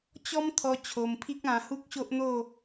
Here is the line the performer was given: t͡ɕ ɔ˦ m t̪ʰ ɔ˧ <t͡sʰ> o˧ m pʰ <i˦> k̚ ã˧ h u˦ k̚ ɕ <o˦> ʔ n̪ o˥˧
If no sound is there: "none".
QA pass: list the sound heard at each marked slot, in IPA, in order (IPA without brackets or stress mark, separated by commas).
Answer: t͡ɕʰ, i˦, o˦